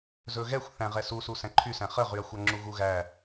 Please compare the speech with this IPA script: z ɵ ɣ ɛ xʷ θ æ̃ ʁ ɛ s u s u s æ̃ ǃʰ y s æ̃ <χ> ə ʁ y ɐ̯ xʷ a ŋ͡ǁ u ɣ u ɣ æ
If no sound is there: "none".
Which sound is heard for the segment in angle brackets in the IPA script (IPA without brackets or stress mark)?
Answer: χ